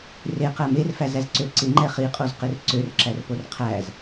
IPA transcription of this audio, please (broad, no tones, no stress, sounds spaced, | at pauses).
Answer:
r e q æ m e r f æ z æ z ǀ ø ǀ ɪ ŋ͡ǃ ɛ χ i qʼ o z q ɪ r ǀ ø r ǁ æ r p o r qʰ æ z